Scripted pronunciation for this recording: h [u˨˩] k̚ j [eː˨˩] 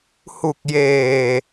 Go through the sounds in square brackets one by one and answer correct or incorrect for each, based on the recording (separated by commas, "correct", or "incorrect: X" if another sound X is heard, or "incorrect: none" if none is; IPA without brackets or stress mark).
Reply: correct, correct